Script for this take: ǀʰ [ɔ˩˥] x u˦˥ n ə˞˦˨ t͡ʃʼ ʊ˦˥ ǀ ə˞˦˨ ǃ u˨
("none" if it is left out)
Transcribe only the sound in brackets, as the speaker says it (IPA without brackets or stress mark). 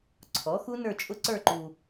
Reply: ɔ˩˥